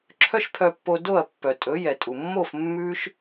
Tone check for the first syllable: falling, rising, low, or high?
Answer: high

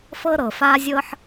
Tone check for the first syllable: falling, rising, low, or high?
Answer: high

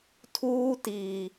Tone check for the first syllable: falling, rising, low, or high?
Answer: high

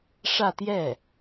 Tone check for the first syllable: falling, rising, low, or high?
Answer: falling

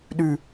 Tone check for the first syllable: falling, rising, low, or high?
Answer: low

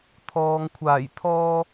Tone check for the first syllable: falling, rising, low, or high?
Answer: low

